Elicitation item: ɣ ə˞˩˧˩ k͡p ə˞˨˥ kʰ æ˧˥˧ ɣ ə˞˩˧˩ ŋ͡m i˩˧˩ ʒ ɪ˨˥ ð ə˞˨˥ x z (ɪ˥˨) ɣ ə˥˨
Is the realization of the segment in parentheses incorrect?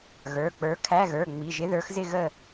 no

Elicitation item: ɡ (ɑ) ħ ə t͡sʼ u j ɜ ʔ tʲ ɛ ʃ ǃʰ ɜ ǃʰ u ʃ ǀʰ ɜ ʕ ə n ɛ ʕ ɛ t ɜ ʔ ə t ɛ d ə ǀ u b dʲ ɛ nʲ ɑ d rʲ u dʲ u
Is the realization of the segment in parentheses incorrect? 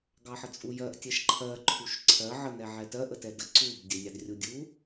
no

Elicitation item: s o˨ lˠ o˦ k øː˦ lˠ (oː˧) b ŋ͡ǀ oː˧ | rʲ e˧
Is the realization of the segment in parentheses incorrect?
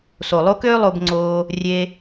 yes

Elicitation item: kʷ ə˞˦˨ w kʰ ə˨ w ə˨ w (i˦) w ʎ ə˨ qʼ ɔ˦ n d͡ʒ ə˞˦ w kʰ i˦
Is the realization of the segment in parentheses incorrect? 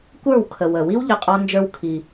no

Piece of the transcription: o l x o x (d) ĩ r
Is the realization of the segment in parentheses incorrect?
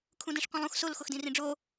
no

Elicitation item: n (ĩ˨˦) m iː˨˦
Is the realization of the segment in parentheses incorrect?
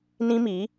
yes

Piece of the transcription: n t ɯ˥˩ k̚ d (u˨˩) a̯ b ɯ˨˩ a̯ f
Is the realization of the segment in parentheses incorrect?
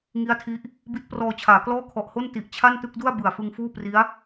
yes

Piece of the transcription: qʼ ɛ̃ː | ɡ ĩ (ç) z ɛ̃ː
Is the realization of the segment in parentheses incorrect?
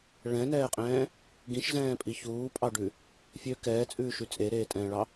yes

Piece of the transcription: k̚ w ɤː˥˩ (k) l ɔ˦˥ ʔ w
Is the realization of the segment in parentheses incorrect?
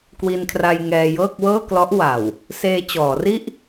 no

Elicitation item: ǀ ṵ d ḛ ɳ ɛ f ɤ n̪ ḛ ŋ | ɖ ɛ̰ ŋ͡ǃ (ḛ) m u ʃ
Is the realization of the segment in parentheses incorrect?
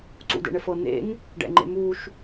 no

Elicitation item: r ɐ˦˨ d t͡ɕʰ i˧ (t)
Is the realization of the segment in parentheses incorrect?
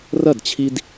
yes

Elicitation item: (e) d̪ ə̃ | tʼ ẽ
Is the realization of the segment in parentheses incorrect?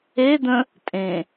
no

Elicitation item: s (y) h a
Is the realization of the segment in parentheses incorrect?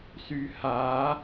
no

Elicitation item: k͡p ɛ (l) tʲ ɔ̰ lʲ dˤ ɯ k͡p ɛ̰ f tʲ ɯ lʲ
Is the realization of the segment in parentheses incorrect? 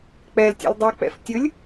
no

